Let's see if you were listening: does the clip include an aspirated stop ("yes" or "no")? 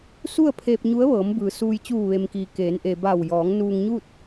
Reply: yes